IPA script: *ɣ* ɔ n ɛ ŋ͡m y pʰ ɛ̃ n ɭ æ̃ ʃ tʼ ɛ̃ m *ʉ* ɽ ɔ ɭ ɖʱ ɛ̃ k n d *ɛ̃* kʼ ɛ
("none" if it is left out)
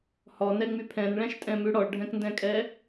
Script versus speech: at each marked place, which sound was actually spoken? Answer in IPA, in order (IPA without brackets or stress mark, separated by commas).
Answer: h, ʉ, ɛ̃